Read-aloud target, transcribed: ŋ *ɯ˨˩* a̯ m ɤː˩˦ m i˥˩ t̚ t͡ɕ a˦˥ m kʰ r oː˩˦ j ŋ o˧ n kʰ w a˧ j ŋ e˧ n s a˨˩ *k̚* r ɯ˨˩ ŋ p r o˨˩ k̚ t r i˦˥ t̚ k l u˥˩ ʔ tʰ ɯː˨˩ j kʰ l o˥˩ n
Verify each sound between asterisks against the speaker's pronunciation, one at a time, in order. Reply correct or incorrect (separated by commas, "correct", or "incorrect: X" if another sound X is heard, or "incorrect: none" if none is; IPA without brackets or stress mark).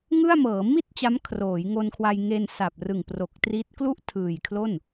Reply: incorrect: ɯ˥˩, incorrect: p̚